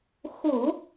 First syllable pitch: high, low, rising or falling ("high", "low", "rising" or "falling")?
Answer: low